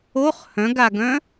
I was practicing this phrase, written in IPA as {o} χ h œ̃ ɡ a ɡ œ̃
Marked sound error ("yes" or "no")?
no